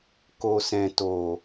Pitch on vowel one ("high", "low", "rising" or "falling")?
low